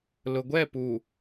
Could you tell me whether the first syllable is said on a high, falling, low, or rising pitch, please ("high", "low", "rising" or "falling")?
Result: low